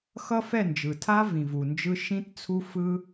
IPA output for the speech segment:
x ʌ˦ f ɛ˦˨ n d͡ʒ ɯ˨ tʰ a˦ v ĩ˨ v u˨ n d͡ʒ ɯ˧ ʃ ĩ˦ t t͡sʰ u˦ f ɯ˦

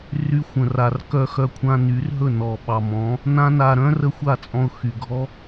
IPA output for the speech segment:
r y˧ xʷ ə̃˨ r a˨ r k œ˧ x œ˧ kʷʰ ã˧ n y˨˦ r ɦ ɵ˦˨ n ɔ˨ ɓ ɑ˨ m ɔ̃˨˦ | n ã˦ n a˧ ɾ œ̃˦ r ə˦ xʷ a˦˨ t͡sʼ ɔ̃˧ ʊ̯ x y˨ ɡʱ ɔ˦

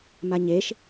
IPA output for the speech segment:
m a ɲ e ʃ

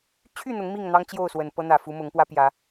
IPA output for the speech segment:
t͡ɕʰ y˥˨ n̪ ʊ˨˦ ŋ m i˥˨ ŋ n̪ ɑ˦ ŋ t͡ɕ j o˥˨ ʊ̯ s w ə˨˩ n p ɤ˦ n̪ ä˨˩ f u˨˦ m ʊ˨˦ ŋ p w ä˦ p j ä˨˦

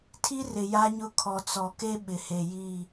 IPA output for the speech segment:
tʰ i˦ r ɪ˨ j a˦ ɲ ʊ˦ kʰ ɔ˨ t͡s ɔ˨ k e˦ ɓ ɪ˨ h e˨ j i˦˨

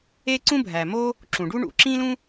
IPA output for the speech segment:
e˥ ǀ ũ˥ bʱ æ˩ m o˥ | ǁ ũ˩ ɖ u˥ ɳ ṵ˩ ǁ ĩ˥ l ũ˥

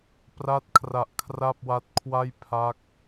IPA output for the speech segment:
p r a˦˥ t̚ kʰ r a˨˩ ʔ kʰ r a˥˩ p̚ w a˦˥ t̚ kʰ w a˥˩ j pʰ a˦˥ k̚

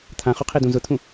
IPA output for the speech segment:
t̪ʰ ã χ u qʰ e d ũ z ʊ t̪ʰ ũ

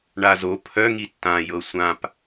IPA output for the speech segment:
ɳ a z o pʰ œ ŋ i tː ã j ɤ sʷ ã p

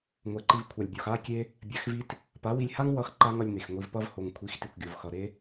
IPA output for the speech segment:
ŋʷ ɛ˨ ǃ i˧ v kʷʰ a˨ lʲ bʲ o˨ x a˦ kʲ e˦ | bʲ a˧ x v i˦ t | p a˨˦ w i˧ lʲ h a˦ ŋ w ʌ˧ x ǃ a˦ ŋ ʌ˧ lʲ n e˨ x ŋʷ i˨ v p ʌ˧ v h o˨ ŋ kʷʰ i˨˦ x t i˨ kʷ ɡʲ o˨ v x ʌ˨ ɾ e˦

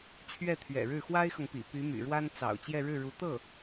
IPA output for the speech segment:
t͡ɕʰ ɥ ɛ˥˩ t̪ʰ ɥ ɛ̰˨˩ ɻ ɻ̩˥˩ x w a˥ ɪ̯ x ɤ˨ ŋ p ḭ˨˩ p y˧˥ m y̰˨˩ ɻ w a˥ n t͡s ɑ̰˨˩ ʊ̯ t͡ɕ j ɛ˥˧ ɻ ɻ̩˥˩ ɻ u˧˥ t̪ ɤ˥˩

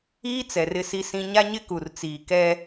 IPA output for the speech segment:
iː˦ t͡s ɛ˨ r ɪ˦ s i˦ s ĩ˦ ɲ a˦ ɲ ɪ˦ k u˨ r t͡s iː˨ k ɛ˦

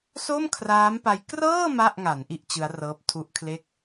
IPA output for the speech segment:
s o˥˩ m kʰ r aː˦˥ m p a˧ j k r ɤː˥˩ m a˥˩ ʔ ŋ a˩˦ n ʔ i˥˩ ʔ t͡ɕ ɯ˦˥ a̯ r ɤː˦˥ p̚ tʰ u˦˥ ʔ kʰ l e˥˩ k̚

